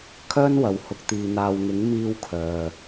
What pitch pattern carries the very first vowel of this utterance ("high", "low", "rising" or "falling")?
high